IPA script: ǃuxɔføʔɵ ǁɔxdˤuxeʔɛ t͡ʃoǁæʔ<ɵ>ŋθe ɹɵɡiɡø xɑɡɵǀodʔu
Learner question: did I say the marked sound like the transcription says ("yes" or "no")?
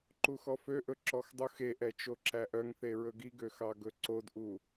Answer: no